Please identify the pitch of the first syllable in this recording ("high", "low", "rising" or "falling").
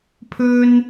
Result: high